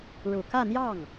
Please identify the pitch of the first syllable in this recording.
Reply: low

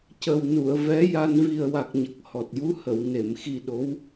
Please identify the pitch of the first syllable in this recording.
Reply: low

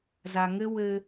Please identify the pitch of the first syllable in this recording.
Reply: low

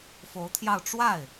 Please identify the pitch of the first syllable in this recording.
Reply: rising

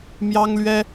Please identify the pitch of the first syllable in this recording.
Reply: high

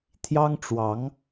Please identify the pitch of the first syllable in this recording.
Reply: high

